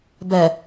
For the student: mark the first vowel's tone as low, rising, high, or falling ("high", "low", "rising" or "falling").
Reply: low